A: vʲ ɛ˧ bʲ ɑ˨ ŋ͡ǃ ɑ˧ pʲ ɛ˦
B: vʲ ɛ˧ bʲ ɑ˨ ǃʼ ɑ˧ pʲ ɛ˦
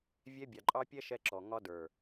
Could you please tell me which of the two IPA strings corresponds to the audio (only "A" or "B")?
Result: B